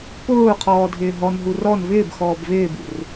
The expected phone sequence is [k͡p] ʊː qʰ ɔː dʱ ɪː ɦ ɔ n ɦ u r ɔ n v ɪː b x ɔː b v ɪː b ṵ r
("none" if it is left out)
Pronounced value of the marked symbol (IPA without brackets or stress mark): p